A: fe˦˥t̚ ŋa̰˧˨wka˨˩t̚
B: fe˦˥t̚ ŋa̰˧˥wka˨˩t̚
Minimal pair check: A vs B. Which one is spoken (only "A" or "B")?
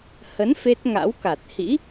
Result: B